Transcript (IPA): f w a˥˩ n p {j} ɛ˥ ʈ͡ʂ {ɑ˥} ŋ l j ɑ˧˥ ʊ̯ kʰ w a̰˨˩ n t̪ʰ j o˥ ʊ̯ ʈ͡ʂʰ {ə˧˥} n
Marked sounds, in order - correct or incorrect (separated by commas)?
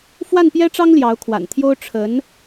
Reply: correct, correct, correct